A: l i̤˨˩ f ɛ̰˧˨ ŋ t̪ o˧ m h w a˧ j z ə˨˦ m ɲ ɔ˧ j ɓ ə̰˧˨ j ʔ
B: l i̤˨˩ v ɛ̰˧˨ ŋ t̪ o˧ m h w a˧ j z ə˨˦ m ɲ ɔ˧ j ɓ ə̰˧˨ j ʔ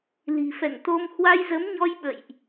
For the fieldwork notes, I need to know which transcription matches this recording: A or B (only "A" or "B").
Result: A